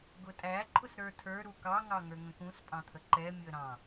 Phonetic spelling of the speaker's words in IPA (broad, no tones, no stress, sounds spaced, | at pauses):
ɡ ʊ tʼ æ ǃʼ ʊ s ɾ ə˞ tʰ ə˞ ɾ u k ɑ ŋ ɑ ŋ ə˞ ŋ ə̃ k ũ s pʼ ɑ̃ t̪ʰ ə ǃ ɛ mʲ ʊ ə̯ ɾ ɑ̃